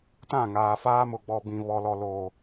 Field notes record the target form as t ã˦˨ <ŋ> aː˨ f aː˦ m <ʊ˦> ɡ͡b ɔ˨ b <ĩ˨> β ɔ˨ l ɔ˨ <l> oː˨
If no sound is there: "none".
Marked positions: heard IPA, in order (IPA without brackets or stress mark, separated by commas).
ŋ, ʊ˨, ĩ˨, l